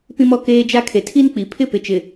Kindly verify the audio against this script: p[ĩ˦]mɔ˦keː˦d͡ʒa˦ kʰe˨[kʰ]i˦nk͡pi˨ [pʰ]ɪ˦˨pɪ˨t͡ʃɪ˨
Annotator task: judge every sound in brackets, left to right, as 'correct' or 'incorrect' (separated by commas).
correct, incorrect, correct